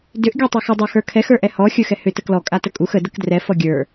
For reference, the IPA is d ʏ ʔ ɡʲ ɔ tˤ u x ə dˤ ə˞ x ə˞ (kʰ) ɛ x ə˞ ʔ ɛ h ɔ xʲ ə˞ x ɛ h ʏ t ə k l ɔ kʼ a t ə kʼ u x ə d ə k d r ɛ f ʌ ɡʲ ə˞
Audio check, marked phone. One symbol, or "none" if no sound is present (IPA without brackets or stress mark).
kʰ